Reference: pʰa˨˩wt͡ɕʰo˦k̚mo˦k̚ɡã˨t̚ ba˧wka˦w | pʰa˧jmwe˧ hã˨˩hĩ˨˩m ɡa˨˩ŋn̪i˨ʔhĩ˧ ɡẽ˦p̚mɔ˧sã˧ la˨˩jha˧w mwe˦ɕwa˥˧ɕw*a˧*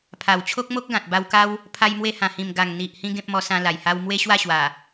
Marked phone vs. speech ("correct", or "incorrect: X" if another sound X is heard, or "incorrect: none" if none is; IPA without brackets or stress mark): incorrect: a˨˩